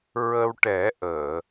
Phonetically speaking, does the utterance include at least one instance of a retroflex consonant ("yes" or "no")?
yes